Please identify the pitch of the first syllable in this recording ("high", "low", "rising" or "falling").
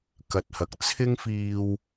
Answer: low